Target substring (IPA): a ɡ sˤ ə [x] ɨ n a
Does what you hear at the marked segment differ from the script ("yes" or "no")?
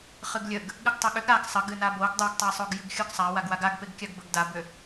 yes